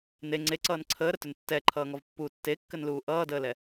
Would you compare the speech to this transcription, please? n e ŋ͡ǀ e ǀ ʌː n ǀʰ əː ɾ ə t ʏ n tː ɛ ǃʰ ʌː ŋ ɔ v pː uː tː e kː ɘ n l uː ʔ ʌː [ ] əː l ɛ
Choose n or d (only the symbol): d